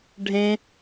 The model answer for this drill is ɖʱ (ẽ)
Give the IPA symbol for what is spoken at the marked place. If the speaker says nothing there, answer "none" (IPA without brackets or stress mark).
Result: ẽ